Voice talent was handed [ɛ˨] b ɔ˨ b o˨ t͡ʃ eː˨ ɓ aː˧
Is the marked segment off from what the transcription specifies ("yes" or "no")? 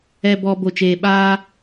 no